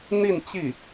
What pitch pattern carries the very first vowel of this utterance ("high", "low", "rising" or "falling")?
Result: falling